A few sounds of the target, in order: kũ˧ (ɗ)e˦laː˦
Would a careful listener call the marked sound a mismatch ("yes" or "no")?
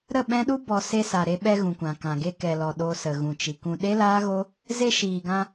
no